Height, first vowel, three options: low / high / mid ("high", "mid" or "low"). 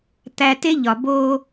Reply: low